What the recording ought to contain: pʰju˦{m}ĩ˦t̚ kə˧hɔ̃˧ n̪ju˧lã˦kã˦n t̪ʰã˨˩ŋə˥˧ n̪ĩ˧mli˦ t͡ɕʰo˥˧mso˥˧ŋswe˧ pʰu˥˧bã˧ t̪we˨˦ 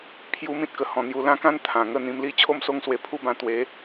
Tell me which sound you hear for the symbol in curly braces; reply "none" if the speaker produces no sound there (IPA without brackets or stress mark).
m